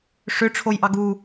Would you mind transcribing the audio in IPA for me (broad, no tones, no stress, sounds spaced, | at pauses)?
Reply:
ʂ ʏ ʈ͡ʂʰ o j ʔ ɑ ɡ u